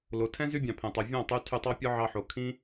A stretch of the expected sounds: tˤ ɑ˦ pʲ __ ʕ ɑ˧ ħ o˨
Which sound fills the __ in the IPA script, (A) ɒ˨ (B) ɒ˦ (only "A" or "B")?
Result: B